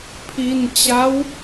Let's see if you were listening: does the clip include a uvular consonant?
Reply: no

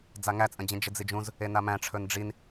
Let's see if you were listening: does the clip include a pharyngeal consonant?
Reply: no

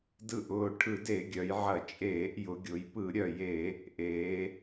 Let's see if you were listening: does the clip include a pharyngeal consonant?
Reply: yes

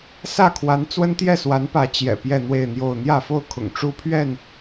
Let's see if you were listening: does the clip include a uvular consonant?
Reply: no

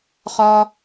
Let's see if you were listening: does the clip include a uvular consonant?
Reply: yes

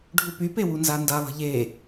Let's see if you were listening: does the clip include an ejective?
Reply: no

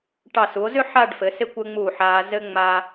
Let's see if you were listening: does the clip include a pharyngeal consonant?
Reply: yes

